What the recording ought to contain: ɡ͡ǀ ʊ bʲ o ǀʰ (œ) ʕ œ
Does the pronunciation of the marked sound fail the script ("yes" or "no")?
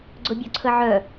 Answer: yes